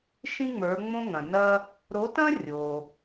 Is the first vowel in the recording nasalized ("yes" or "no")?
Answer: yes